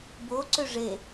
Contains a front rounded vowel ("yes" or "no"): yes